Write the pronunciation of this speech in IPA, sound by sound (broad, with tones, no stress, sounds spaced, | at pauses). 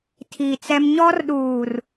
tʰ i˨ t͡s ɛ˦ m ɲ ɔ˦ r ɗ uː˨ r